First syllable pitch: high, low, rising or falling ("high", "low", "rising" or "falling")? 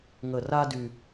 low